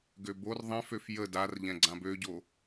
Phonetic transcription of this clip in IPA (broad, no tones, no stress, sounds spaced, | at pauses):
ɡ ø b o r ðˤ ɛ̃ f ø f j ə d a r ʎ ɛ̃ ɡ͡ǀ ã b ø ɟ o